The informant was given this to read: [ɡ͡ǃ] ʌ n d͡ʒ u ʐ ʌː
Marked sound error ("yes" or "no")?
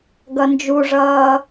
yes